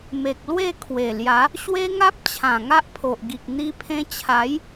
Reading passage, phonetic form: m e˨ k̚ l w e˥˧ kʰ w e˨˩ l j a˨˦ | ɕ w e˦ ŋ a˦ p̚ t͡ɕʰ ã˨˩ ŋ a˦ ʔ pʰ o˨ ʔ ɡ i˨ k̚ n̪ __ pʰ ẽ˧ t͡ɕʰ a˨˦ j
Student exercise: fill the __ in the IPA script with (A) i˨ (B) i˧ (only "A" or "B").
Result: B